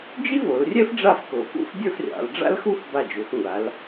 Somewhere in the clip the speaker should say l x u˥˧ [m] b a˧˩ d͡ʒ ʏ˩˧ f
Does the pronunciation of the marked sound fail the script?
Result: yes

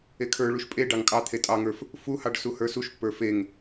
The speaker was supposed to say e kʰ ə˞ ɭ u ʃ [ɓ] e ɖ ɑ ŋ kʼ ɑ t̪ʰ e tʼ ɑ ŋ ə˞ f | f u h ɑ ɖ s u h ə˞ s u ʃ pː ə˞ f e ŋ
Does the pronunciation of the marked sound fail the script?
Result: yes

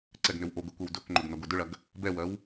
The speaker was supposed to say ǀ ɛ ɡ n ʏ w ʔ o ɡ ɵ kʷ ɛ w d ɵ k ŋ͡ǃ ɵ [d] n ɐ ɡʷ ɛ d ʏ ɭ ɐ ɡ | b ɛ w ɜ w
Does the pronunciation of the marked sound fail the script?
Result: yes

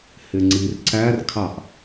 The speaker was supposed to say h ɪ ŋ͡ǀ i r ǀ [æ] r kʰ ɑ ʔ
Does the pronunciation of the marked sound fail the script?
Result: no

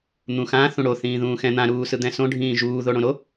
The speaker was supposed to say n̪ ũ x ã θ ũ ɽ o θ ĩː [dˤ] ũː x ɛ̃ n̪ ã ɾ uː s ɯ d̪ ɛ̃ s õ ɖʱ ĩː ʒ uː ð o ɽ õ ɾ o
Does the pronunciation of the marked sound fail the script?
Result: yes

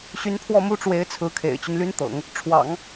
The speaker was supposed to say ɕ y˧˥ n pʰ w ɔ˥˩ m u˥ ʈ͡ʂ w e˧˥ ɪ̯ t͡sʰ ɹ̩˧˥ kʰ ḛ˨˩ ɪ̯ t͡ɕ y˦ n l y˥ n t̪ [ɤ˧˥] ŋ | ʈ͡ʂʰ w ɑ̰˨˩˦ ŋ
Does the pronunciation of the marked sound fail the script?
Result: yes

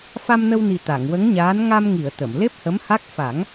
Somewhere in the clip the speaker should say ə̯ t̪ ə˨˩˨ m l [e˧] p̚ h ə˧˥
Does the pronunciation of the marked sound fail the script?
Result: yes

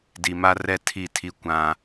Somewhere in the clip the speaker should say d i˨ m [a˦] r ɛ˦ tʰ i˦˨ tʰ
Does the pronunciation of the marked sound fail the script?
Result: no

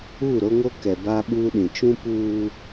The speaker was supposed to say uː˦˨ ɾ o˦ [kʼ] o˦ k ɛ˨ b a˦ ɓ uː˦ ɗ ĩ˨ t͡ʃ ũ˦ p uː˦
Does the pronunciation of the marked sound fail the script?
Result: yes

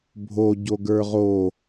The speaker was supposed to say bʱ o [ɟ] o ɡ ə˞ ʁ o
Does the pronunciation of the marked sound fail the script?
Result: no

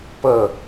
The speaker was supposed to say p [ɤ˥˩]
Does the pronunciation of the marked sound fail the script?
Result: no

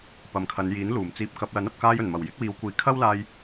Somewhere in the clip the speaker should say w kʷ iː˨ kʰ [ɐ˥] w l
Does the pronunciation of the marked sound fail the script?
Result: no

